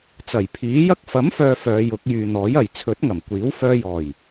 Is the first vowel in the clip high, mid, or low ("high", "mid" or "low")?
low